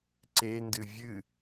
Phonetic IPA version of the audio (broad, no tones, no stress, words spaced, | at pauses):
ǀendɨ vʲɨ